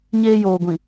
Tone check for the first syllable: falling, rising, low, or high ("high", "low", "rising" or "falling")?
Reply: high